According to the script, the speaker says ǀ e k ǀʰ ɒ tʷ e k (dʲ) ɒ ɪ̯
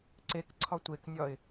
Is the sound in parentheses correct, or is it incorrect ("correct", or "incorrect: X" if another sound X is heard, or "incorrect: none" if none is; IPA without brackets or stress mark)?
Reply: incorrect: nʲ